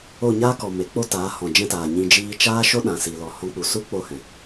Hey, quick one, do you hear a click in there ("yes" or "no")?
no